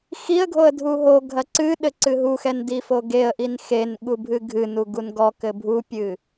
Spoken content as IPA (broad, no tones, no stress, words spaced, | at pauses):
xiə̯ɡʱoə̯ dʱuɦoɡʱɐ ǀɨɗɘ ǀɨɦuxɛn difoɡeə̯ʔin xen ɠubʱɨɡʱɨnu ɡunɡɔkɘ bʱupʲɨ